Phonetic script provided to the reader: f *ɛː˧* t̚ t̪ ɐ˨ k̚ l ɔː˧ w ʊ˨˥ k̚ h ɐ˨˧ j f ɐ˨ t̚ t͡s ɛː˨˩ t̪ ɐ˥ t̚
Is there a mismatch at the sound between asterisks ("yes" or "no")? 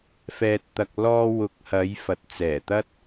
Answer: yes